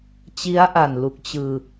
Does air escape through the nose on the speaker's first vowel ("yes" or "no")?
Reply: no